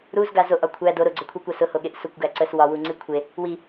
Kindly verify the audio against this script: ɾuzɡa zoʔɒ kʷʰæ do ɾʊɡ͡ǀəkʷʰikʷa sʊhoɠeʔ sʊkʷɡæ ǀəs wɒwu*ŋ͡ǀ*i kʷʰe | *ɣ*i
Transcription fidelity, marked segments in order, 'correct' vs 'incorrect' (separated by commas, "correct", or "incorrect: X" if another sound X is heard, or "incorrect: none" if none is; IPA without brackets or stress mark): correct, incorrect: w